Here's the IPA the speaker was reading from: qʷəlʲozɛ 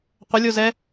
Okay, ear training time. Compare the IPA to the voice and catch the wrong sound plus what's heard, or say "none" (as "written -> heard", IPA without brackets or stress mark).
none